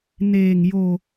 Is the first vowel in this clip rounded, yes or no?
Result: no